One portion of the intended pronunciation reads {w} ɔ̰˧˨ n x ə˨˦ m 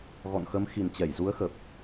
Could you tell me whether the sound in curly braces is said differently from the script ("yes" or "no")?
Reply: yes